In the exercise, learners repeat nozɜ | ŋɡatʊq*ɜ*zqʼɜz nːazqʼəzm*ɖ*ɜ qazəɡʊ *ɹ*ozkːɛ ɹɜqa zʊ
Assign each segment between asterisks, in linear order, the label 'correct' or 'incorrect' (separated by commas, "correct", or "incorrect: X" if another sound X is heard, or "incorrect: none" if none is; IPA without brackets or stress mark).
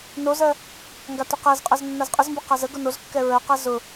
incorrect: æ, incorrect: b, incorrect: n